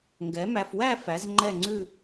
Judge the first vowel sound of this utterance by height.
mid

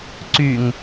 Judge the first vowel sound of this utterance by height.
high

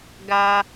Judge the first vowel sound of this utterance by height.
low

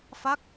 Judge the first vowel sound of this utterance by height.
low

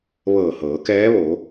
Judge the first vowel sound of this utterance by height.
mid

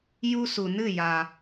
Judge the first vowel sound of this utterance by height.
high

